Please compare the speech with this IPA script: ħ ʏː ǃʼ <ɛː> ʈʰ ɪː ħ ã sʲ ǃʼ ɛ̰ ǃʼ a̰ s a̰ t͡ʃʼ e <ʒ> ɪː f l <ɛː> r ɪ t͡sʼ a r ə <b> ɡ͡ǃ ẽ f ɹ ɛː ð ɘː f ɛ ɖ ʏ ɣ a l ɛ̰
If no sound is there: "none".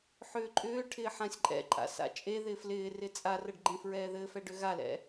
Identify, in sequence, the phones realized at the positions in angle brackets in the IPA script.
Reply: ʏː, ð, ɪː, ɖ

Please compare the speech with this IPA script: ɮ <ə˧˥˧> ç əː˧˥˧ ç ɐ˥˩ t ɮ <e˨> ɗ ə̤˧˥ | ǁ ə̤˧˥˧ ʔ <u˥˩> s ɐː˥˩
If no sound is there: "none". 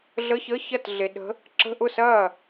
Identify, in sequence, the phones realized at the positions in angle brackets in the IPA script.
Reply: ə˧˥˧, e˨, ʊ˥˩

